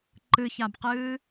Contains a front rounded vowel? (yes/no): no